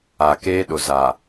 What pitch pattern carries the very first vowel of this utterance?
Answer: low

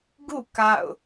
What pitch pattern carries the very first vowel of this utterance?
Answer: falling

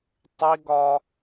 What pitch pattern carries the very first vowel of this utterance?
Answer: high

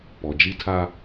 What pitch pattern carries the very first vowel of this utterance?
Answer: low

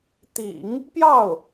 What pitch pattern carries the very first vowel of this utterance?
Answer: low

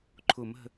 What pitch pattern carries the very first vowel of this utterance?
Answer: low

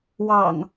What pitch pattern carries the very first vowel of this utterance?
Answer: low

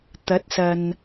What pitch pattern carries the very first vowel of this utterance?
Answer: rising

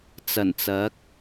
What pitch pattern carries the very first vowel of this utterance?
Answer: low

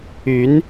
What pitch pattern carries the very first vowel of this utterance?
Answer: rising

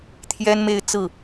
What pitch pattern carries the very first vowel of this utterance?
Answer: high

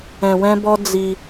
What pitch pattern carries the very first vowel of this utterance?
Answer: low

